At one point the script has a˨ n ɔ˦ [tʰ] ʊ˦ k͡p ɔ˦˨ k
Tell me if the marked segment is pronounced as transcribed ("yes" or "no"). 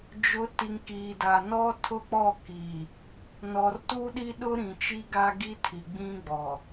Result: yes